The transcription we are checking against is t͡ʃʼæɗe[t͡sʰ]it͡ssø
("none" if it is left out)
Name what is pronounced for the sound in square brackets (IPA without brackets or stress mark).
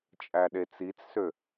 t͡s